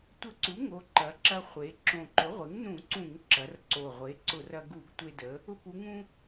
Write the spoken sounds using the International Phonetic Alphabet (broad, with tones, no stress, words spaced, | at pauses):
tʷə˧˩˧ǀu˩˥ŋo˩˧ ǃɐ˩˧ǁɐ˧χʷe˩˧ ǁõ˨˩ǃʊ˩˥ʁʷe˩˥ŋnũ˧˩˧ ǀũ˧˩˧ŋǁɐ˩˧rǀo˨˩ ʁʷe˩˥ǀʊ˧˩˧rɐ˧ ɡu˧˩˧ɡtʷe˧də˩˧ | ʊ˧pu˩˧ŋũ˧